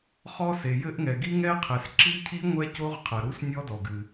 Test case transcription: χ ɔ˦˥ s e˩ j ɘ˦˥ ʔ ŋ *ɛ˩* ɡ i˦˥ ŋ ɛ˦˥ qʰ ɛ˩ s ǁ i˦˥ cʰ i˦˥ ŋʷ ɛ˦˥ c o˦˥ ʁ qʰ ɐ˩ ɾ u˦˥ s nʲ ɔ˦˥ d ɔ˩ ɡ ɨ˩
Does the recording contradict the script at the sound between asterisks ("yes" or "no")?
no